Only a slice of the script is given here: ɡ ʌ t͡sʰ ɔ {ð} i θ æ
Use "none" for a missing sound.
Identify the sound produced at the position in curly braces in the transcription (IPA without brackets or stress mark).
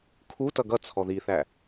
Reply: ð